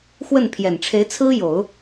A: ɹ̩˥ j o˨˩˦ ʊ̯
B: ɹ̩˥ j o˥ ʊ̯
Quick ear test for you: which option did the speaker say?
A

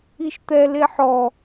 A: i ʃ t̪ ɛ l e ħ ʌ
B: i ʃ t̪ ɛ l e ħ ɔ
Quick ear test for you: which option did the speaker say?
B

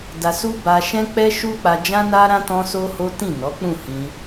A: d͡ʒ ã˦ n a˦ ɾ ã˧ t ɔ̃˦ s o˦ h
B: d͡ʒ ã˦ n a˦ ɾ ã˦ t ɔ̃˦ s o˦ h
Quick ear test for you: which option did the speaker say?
B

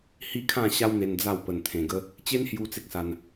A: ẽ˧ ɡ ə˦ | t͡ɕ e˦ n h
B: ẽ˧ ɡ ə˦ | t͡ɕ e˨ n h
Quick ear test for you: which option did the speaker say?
A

